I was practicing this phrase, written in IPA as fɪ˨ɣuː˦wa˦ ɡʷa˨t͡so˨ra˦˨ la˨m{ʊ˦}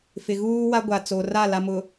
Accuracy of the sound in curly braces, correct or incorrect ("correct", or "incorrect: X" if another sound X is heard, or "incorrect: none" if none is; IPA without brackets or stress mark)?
incorrect: ʊ˨